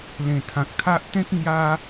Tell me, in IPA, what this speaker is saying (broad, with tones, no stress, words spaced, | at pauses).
lẽ˨˩t̪ʰã˨k̚t̪ʰa˦ʔ t̪ẽ˦k̚ ŋja˦